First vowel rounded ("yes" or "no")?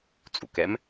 yes